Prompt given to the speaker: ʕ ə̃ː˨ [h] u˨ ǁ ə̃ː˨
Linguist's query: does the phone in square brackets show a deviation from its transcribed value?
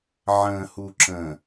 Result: no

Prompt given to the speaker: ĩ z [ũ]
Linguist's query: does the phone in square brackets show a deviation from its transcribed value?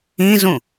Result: no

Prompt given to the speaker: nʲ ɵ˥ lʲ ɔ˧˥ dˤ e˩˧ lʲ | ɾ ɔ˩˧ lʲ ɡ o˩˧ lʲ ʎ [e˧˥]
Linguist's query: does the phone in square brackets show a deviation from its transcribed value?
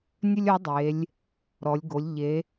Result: yes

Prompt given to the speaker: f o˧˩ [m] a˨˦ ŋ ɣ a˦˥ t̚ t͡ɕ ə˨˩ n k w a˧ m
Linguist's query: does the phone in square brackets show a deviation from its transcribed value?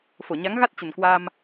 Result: yes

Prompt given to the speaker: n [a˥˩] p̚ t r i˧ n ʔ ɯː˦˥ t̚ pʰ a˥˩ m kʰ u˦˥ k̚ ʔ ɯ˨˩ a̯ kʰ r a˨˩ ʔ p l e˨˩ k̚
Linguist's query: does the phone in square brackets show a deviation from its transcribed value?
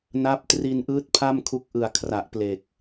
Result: yes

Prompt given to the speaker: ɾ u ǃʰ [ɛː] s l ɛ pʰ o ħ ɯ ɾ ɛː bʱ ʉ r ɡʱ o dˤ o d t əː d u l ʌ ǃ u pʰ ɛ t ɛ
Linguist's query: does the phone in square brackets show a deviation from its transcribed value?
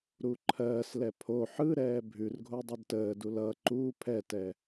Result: yes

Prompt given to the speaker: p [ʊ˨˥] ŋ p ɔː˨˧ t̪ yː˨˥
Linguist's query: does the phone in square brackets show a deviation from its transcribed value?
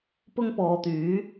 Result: yes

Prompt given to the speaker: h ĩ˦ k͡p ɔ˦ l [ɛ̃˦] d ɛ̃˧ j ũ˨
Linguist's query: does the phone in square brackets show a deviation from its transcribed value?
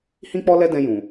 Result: yes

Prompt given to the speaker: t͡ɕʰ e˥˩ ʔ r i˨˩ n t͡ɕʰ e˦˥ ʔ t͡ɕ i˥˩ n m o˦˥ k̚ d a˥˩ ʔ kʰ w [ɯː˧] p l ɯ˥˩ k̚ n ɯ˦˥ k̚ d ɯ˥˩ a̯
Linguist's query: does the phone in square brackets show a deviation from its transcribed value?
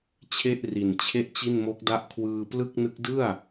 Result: no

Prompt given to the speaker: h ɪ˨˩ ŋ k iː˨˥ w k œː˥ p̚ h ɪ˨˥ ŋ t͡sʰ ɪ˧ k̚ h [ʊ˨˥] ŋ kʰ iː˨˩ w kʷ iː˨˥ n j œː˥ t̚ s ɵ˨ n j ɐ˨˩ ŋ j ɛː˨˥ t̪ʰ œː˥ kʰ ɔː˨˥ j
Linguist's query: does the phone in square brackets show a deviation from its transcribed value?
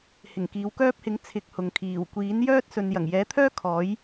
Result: yes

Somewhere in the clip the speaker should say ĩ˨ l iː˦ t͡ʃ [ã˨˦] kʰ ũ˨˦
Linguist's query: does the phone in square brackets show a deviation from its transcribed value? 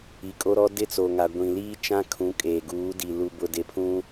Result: yes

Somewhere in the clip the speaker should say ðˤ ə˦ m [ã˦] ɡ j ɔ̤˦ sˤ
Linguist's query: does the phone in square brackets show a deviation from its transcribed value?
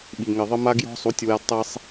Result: yes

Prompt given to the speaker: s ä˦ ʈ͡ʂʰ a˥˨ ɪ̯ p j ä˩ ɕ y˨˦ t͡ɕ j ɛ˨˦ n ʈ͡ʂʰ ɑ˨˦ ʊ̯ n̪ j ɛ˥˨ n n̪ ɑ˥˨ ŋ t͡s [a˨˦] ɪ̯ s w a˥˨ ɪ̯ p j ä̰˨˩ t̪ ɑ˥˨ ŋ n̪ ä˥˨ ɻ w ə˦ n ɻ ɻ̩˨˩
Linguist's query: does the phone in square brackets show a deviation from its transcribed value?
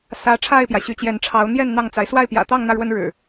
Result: no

